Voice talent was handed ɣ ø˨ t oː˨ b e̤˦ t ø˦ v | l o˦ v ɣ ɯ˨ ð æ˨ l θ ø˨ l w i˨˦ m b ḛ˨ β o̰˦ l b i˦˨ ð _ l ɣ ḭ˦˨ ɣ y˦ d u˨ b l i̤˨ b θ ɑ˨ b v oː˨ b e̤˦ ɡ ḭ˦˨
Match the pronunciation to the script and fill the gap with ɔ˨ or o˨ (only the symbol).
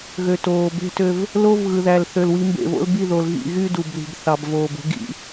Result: o˨